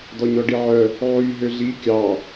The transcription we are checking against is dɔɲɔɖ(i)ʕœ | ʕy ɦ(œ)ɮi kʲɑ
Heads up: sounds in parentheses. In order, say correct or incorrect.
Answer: correct, incorrect: ø

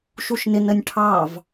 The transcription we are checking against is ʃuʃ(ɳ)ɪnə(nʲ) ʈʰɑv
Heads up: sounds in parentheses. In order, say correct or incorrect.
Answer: incorrect: n, correct

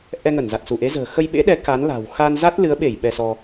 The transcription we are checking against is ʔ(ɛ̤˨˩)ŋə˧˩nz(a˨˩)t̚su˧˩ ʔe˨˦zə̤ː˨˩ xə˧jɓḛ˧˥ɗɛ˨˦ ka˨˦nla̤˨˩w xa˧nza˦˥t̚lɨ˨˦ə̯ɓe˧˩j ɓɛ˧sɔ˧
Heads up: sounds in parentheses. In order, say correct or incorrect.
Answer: incorrect: ɛ˧, correct

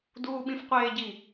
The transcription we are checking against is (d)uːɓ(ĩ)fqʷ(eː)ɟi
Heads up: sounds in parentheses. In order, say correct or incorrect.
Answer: correct, correct, correct

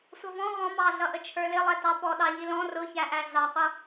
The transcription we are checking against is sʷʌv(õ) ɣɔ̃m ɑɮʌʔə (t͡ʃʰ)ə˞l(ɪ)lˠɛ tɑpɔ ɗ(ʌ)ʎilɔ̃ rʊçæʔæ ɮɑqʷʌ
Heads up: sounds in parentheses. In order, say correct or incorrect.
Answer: incorrect: ɔ̃, correct, correct, incorrect: ɑ

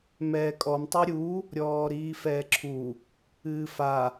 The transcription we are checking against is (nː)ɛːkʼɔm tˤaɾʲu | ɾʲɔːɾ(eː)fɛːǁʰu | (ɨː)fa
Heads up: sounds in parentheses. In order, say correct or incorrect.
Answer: incorrect: m, incorrect: iː, correct

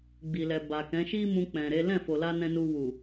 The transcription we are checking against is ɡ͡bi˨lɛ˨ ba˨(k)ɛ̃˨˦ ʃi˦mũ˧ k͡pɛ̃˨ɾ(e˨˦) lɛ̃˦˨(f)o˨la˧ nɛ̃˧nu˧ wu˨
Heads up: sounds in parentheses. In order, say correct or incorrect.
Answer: correct, correct, correct

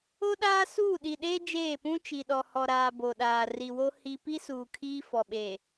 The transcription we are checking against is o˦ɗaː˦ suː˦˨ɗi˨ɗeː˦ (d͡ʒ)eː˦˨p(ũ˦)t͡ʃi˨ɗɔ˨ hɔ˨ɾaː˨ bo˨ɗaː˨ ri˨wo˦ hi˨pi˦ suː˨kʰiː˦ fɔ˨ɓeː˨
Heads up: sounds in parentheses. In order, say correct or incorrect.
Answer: correct, correct

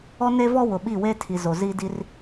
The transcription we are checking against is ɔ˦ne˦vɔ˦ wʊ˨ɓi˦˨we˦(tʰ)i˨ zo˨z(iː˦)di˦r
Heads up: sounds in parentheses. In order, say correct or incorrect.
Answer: correct, correct

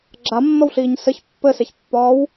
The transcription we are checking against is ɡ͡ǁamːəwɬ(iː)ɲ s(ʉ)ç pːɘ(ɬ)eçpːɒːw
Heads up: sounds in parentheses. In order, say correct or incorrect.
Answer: correct, incorrect: ɘ, incorrect: s

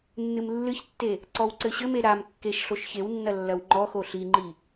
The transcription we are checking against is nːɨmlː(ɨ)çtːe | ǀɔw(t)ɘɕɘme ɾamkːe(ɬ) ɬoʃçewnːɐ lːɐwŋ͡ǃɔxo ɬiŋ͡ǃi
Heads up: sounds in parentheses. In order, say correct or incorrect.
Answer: correct, incorrect: ǀ, incorrect: ʃ

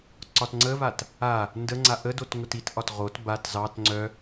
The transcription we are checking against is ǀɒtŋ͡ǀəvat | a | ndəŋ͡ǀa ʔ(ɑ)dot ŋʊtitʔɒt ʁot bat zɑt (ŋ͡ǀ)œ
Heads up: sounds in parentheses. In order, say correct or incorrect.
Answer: incorrect: ə, correct

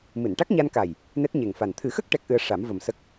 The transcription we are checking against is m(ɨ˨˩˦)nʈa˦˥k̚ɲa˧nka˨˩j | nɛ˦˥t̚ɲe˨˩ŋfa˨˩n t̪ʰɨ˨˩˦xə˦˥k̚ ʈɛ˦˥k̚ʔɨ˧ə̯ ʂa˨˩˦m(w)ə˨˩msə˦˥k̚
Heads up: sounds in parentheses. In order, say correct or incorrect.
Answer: incorrect: ɨ˨˩˨, incorrect: v

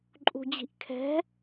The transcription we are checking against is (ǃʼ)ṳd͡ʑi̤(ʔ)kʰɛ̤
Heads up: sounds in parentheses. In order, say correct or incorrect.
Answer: correct, correct

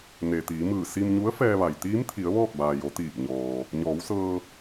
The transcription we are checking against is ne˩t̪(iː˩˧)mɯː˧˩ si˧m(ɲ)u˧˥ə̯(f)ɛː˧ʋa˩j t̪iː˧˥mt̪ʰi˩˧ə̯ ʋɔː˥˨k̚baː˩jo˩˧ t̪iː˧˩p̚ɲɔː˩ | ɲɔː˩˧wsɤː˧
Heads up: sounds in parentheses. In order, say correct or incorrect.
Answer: correct, correct, correct

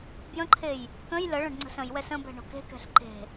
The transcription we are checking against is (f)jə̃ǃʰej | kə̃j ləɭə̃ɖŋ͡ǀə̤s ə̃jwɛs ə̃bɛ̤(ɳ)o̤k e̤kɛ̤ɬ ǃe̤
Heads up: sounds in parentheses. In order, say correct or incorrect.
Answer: incorrect: b, correct

